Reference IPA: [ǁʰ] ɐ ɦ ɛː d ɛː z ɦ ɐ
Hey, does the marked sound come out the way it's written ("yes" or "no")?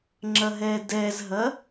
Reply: no